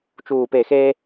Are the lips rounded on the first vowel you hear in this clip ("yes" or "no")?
yes